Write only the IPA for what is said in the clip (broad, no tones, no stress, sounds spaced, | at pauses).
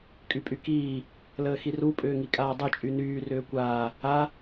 kʼ y pʼ y k iː | l əː x i r u pʼ ʏː ŋ i kʼ aː dˤ y t͡ʃʼ y n yː r ʏː kʷ aː | a